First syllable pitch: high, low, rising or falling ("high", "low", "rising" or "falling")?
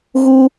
high